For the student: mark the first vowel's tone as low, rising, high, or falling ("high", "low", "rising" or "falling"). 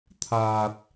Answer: low